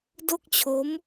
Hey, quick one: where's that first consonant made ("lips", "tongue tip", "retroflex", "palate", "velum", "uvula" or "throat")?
tongue tip